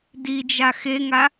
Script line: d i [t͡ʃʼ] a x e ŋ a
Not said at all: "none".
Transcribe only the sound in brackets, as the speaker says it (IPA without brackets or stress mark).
d͡ʒ